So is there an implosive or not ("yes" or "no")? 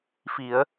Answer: no